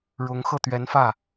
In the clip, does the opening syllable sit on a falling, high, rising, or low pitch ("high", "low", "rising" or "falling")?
rising